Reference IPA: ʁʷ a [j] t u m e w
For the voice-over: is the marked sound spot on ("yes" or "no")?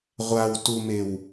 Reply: no